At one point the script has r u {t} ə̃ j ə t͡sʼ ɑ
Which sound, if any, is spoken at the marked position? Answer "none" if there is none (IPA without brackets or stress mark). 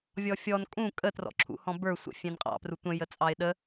tʷ